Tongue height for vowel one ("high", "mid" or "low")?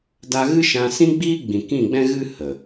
low